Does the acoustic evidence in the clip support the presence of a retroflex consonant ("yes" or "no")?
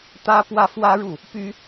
yes